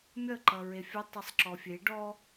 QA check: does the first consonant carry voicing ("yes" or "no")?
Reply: yes